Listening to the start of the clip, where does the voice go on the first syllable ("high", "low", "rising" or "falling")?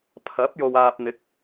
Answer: rising